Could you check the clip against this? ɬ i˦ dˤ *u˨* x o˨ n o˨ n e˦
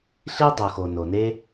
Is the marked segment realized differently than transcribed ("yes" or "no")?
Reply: no